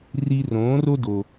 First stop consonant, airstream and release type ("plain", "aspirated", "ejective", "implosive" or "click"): plain